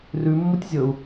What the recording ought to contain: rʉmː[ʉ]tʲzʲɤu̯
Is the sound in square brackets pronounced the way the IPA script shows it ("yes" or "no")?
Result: no